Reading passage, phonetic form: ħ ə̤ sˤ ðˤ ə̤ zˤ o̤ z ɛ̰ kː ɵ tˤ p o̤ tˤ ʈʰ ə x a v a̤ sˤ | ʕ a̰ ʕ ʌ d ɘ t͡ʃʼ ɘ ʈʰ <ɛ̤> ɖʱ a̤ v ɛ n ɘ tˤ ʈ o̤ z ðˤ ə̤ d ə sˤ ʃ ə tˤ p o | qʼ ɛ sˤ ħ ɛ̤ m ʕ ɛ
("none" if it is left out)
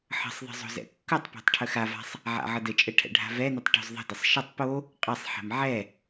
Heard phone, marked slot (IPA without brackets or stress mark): ɛ̰